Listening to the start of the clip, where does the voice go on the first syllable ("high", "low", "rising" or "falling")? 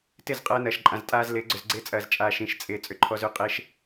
falling